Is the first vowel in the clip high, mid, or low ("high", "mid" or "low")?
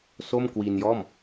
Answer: mid